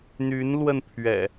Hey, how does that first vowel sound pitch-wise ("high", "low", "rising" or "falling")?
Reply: rising